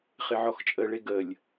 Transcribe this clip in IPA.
χɪʕɔxt͡ʃʼəɭe ɡəlʲ

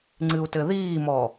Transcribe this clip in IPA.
ŋ͡ǀɨu̯tɘðiːmɔ

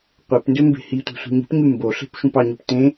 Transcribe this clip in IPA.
qʷepndø mbe̤hitʷe̤ sʷi̤ɲi̤pɲy mboɬe̤p ʃũpɑɲɯp tẽ

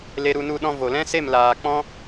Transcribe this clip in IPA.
le˧ɾu˧nu˧ ɗɔ̃˧vo˨lɛ̃˦se˦˨m laː˨ k͡pɔ̃˦

